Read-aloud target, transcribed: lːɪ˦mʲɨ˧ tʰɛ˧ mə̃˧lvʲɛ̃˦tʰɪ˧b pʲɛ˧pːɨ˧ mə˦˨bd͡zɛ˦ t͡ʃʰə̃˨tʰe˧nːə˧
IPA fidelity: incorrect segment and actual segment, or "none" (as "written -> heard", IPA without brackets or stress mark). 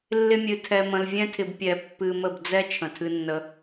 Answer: e˧ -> ɨ˧